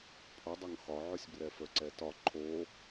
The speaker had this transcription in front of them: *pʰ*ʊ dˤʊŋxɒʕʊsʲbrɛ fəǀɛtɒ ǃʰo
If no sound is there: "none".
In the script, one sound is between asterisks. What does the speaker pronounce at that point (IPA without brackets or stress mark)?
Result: pʰ